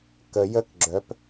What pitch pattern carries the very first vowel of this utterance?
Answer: low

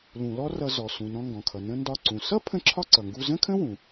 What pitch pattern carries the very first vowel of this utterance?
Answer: low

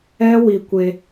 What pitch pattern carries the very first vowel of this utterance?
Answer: high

